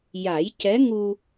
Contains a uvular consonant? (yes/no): no